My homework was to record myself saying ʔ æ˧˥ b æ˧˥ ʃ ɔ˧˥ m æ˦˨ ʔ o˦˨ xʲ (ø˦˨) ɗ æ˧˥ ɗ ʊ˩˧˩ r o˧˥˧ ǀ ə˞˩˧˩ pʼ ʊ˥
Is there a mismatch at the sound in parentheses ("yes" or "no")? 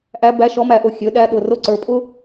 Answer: yes